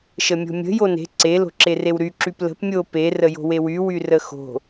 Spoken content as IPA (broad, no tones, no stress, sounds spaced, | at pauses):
ʃ ə mʲ o̤ mʲ ə̤ j o n e̤ ǀ e l o̤ ǁ e r e w ɾ y ǁ y p l ə̤ p mʲ o p e r ə j o̤ w e w y w y r ə x o̤